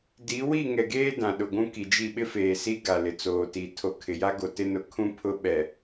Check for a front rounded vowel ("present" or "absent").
absent